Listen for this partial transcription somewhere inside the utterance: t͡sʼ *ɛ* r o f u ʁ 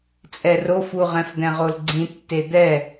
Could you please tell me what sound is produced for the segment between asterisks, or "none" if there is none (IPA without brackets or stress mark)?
ɛ